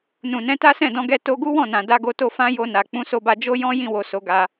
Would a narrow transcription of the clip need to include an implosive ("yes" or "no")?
no